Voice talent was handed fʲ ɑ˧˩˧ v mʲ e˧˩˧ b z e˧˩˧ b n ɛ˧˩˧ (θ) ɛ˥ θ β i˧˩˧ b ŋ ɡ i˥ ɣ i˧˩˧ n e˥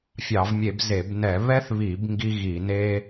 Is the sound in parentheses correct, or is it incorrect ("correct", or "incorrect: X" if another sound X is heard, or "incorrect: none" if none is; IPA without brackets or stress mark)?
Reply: incorrect: β